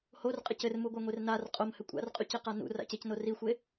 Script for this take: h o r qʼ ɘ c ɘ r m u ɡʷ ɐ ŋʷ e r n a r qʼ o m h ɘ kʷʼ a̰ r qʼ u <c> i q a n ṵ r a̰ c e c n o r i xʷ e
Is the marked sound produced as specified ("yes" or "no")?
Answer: yes